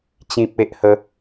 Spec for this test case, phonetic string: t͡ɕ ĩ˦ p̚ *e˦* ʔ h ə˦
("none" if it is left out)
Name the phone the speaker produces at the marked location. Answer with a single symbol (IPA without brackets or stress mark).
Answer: e˦